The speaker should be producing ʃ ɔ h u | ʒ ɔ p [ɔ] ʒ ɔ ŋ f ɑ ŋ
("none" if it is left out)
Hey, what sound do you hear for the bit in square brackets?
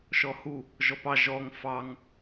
ɑ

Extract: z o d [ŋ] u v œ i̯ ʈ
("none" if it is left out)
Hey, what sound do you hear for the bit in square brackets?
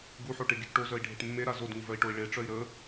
ŋ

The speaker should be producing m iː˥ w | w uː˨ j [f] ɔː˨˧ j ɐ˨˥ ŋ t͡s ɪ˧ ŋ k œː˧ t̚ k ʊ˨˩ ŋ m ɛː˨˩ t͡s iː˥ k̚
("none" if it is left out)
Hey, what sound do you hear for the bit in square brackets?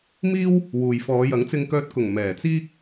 f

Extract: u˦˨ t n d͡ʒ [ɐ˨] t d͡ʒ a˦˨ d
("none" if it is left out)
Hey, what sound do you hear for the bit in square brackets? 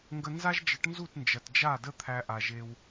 ɐ˨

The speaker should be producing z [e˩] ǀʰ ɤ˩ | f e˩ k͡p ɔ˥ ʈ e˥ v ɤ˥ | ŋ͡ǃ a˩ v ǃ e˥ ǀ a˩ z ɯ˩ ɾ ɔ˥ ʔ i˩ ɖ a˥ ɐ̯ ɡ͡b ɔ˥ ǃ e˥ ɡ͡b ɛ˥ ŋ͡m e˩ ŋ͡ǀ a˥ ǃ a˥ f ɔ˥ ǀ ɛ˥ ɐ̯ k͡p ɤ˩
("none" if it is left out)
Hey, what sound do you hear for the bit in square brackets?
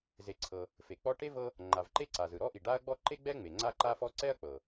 e˩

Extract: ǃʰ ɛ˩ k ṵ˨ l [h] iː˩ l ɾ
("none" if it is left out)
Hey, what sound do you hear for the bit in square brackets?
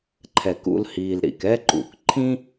h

